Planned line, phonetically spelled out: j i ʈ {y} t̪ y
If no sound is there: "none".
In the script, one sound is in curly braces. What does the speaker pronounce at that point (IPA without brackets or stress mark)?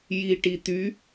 i